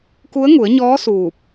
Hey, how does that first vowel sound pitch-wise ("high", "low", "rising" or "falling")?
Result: rising